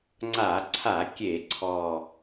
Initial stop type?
click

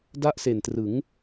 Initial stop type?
plain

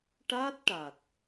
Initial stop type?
plain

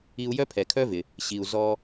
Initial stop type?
aspirated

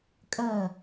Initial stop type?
ejective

